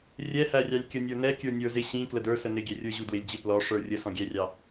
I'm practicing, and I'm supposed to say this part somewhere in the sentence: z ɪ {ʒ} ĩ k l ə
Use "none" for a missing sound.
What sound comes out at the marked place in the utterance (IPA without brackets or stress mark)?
ɕ